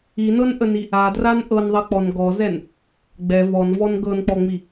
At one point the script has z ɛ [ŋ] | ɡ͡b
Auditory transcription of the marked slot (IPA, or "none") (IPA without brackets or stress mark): n